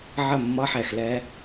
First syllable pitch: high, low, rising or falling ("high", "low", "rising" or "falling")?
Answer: falling